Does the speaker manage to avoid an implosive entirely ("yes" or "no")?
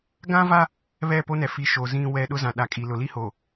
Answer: no